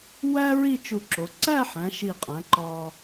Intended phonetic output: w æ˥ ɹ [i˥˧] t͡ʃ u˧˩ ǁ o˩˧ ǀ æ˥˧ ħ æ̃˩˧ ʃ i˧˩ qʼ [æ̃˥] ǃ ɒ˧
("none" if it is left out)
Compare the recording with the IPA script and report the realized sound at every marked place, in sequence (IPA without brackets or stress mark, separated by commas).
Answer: i˥˧, æ̃˩˧